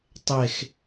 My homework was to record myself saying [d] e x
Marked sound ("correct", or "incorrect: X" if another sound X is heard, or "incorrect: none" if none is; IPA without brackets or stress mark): incorrect: tˤ